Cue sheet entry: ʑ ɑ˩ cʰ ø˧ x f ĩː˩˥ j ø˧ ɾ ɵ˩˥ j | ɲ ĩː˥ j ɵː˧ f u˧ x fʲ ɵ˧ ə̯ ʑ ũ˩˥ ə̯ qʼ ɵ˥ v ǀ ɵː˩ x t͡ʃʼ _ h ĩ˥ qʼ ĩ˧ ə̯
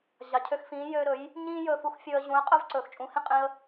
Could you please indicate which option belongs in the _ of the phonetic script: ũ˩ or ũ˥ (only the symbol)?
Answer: ũ˩